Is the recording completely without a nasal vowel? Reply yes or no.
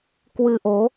yes